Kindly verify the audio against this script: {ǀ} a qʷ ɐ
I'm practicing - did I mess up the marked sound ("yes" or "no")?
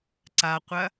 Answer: no